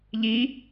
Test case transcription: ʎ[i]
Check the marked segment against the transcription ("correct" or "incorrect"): correct